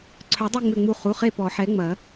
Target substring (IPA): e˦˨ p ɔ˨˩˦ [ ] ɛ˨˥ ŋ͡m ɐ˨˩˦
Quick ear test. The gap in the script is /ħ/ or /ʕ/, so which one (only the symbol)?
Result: ħ